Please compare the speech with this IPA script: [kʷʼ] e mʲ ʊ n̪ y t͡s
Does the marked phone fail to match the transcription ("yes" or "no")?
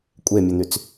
no